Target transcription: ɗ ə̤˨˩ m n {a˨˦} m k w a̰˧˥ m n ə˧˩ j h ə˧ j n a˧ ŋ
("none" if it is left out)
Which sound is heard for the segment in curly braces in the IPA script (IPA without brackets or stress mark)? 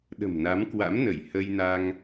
a˨˦